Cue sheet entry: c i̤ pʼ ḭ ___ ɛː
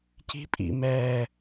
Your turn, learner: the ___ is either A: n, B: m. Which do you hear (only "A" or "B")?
B